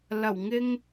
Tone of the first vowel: low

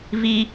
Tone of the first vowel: high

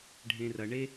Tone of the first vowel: low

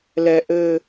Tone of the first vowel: high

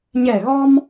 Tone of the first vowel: low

